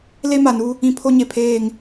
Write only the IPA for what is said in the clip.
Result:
le˦ma˨nu˦ | ĩ˦pʰo˦ɲe˨pʰeː˦˨ŋ

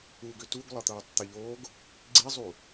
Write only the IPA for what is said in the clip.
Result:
uɡʏ tuɡ lˠɤt̪ɤːtˤt̪ɪʎoːɡ | ɡ͡ǀizˤu

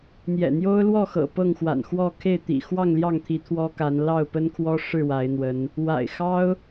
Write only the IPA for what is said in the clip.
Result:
n̪jɛ̰˨˩n̪jo˦ʊ̯lwɔ˥˨xɤ̰˨˩ pɤ˥˨ŋxwa̰˨˩nxwɔ˥˨ kʰe˥˨ɪ̯t̪ḭ˨˩ xwɑ˥˨ŋljɑ˥˨ŋt̪ʰi˨˦ t̪ʰwɔ˦ka˨˦n lɑ˥˨ʊ̯pə˦nkʰwɔ˦ ʂɻ̩˥˨wa˨˦ɪ̯n̪wə˨˦n | wa̰˨˩ɪ̯xɑ˦ʊ̯

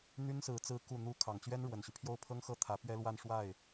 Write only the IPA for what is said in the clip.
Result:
n̪y˥nsɹ̩˧˥ t͡sɹ̩˧˥ ku˥˩n̪u˥ kʰɑ˨˩ŋt͡ɕɥɛ˥n ɻwə˨˩nɕy˦pʰjo˥˩ʊ̯ pʰɤ˥ŋxɤ˥˩t̪ʰä˧˥ pɥɛ˥lwa˥˧n ʂwa˥˩ɪ̯

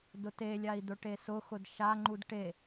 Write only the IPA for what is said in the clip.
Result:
dʊtelʲai̯ d̪ʊʈesʊxʊd ʃaŋ͡ǃud ʈe

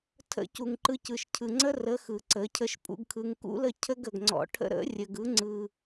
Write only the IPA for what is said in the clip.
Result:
tʰə̰˧ cu˨ŋǃɯ˧cɯ˨ʃ cʰɯ˨ŋ͡ǀə˦rə˨˦ xɯ˨ǀə˨˦cʰə˦ʃ pʼṵ˧ɡkʰɯ˧ŋ kṵ˦lə˦˨ cʰə˦ɡə˨ɡŋ͡ǀɔ̰˧ ʈʰə̰˦ ɾə̰˨˦rʲə˨ɡɯ˨˦ ŋ͡ǀɯ˧

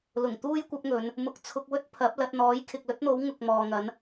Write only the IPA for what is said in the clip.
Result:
lʊ˨˩ŋt̪uː˥jkʷɐ˨˥p̚ŋɵ˨˧n | mʊ˨˥k̚t͡sʰʊ˧k̚wɵ˥t̚ pʰɐ˨˥p̚ lɐ˧t̚n̪ɔː˨˥j kʰɪ˨k̚lɵ˥t̚n̪o˨˥w ŋʊ˨k̚mɔː˨ŋɐ˨˥n

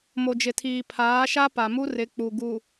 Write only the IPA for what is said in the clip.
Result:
mo˨d͡ʒɪ˨tʰiː˨ pʰaː˨˦ʃa˦ pa˨mu˦ rɪ˨˦ k͡pu˨ɡu˨

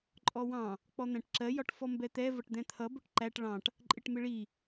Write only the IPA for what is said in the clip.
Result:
ǃʼɔwɑ̃ | k͡pɔn̪æ̃ʈǁɜ jɒʈfɔmbɛt̪ɛ vʌʈd̪ɛ̃t̪ʰʌ bʊʈǃæʈ ɭɑ̃ʈ | ǃʼɪʈmɪɭi

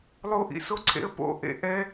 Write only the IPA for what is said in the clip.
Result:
lˠoʔḭsoǀʰḛə̯ po̰ʔḛ ʔɛ

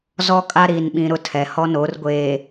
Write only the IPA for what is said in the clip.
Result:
zɔ˦kʼa˦ɾiː˨nɓĩ˨ ɾʊ˦tʰɛ˨ hɔ˦no˨˦r ɡʷeː˨

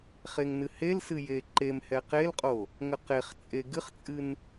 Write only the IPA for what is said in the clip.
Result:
χeŋnɨhelsɨ jeǃemhɛ qelqʼo | ŋəqeχt͡sʼe ɡɨχt͡sʼɨn

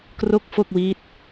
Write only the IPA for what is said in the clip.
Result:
kro˥˩k̚fo˥˩k̚wi˦˥t̚

